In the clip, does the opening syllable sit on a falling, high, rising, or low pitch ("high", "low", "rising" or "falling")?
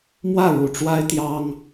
falling